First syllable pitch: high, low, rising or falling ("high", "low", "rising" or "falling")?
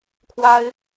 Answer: high